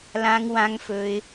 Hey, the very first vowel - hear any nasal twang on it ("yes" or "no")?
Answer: yes